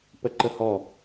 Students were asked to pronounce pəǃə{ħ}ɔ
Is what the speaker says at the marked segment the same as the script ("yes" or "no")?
no